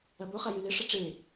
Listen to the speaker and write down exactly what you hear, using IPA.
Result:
ɐ b o χ a j ɨ l e ʂ ɐ ʈ͡ʂ e

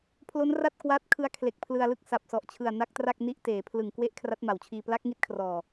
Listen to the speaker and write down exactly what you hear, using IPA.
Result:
pʰ l o˦˥ n r a˥˩ t̚ k w aː˦˥ t̚ kʰ ɯ˦˥ a̯ kʰ l e˨˩ k̚ pʰ l ɯ˧ a̯ l ɯ˥˩ k̚ s a˨˩ p̚ s ɔ˨˩ ʔ t͡ɕʰ ɯ˨˩ a̯ n a˦˥ k̚ t r a˥˩ k̚ n i˦˥ ʔ t eː˩˦ pʰ l ɯ˨˩ ŋ k w e˦˥ ʔ kʰ r a˦˥ t̚ m a˩˦ w t͡ɕʰ iː˧ p l a˦˥ k̚ ŋ i˦˥ t̚ kʰ r ɔː˨˩

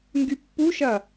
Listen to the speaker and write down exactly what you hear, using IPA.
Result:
ŋ ɡ y pː u ʃ ɐ

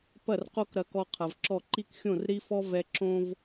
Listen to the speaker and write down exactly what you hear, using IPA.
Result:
p ɐ˦˨ r q o˦ k ɾ ɐ˨ k ɔ˨ qʰ ɐ˨ v ǁ ɔ˦˨ ǃ i˦ k xʲ õ˦˨ r ɾ i˦ f ɔ˦ v ɛ˦ ǁ õ˦ v

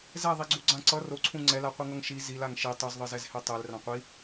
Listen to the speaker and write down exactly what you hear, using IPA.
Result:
z ɛ ðˤ i ɡ͡ǀ u ɡ͡ǀ ã ǀ ʌ r o ǀʰ ũ ŋ͡ǀ ɛ l a qʷ ɯ ŋ ʌ ŋ ʃ i z i l a ŋ ʃ i tˤ u z ðˤ ɯ z ɛ z h e tˤ e l r ã qʷ i

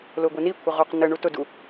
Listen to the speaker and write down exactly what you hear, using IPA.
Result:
l ʊ ɡʷ i n i kʷʰ ɪ ʁ u q n ə ɳ u t ʊ d u

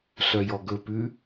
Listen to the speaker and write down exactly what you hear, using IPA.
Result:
ɬ œ j ɔ ɡ ɵ p ʉ

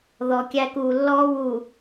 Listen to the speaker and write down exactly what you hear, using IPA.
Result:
ð ɔ˨ kʲ æ˦ k uː˨ lː ɔː˦ w u˨

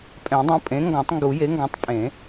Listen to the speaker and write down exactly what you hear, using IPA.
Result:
pʼ ɛ̃˨˩˦ dˤ ũ˩˥ pʼ ẽ˩˥ ŋ ɡ ɔ̃˨˩˦ tˤ ŋ ɡ u˨˩˦ j e˩˥ ŋ ɡ ɔ̃˩˥ tˤ pʼ ẽ˨˩˦

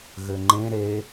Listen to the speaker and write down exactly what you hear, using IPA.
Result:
ɣ ɘ ŋ͡ǃ ẽ ɾ e

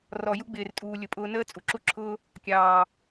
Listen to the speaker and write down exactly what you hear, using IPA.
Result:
r ɔ˨ j u˦ ɡ͡b ɪː˨ r tʼ uː˨ lʲ ʊ˨ pʼ ʊː˧ n əː˦ t͡sʼ u˨ ǁ u˦ ǁʰ ʊː˦ | kʲ ɑː˨

